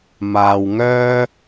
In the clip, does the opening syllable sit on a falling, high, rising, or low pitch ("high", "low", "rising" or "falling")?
low